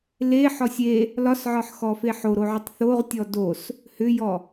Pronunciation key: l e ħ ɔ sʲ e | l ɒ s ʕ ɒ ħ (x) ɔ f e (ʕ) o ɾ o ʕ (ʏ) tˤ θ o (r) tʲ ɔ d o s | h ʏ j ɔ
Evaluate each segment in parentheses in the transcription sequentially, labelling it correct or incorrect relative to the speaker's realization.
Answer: correct, incorrect, correct, incorrect

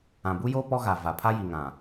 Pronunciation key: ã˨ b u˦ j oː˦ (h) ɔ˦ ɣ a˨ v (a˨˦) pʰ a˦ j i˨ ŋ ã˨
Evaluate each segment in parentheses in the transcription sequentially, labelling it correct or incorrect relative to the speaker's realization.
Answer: incorrect, incorrect

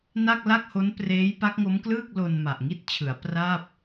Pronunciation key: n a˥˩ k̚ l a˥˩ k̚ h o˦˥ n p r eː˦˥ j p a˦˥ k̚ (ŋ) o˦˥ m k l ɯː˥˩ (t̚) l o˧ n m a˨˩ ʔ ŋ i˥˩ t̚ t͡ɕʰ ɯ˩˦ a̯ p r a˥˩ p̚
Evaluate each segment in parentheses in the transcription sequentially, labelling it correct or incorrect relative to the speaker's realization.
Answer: correct, incorrect

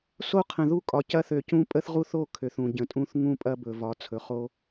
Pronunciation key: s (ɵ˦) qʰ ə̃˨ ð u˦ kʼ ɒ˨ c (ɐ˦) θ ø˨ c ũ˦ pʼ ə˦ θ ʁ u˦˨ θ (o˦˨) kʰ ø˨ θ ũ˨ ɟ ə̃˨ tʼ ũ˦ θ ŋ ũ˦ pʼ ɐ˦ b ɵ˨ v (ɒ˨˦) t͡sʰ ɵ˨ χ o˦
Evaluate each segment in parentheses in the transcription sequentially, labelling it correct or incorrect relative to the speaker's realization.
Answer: incorrect, correct, correct, correct

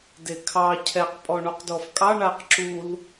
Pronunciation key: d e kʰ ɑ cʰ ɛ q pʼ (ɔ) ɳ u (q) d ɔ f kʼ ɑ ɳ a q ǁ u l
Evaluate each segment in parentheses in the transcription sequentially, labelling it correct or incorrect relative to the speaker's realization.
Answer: correct, correct

